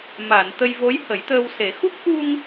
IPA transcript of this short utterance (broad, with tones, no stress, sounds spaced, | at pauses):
m aː˨˩˨ n t̪ ə˧ j v o˧˥ j h ə˨˩˦ j t̪ əː˧ w s e˨˩˦ x u˦˥ k̚ ʔ u˧ ŋ